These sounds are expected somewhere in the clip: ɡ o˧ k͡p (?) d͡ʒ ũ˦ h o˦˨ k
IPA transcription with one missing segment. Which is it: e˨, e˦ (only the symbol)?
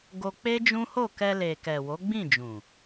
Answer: e˦